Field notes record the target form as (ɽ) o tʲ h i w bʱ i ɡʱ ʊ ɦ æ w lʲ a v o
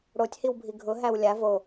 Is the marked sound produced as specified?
yes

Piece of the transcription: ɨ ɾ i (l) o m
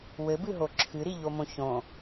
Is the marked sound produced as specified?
no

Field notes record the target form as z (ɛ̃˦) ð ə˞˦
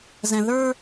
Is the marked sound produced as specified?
no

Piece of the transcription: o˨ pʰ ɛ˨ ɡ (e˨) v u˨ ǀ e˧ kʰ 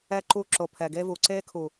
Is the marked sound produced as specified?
no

